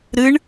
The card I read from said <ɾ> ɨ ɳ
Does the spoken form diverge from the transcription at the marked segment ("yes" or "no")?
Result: no